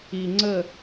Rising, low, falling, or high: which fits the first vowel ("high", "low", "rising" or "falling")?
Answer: low